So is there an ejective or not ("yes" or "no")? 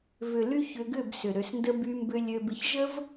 no